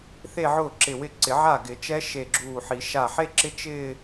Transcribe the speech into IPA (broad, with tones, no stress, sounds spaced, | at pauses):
θ e˥˧ ʕ ʊː˥˩ ǁ ɪ˧˩ w ɪ˥˩ ǀ ɪ˨˩˦ ʕ a˥˩ ɡ ɪ˨˩˦ t͡ʃ ɛ˦˥ ʃ e˧˩ ɡ͡ǁ uː˧˩ ħ i˨˩˦ ʃ a˧˩ ħ e˥˧ ǁ ɪ˦˥ t͡ʃ ɪː˥˧